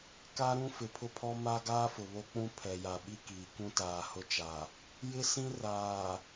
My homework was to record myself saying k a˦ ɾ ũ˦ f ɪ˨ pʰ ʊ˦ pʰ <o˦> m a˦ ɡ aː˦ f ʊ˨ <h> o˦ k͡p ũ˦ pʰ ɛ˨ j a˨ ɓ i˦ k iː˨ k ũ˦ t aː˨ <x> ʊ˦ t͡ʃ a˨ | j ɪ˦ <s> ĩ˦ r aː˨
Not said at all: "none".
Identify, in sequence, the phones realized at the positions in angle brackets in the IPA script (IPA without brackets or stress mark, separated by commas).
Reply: ɔ˦, β, h, s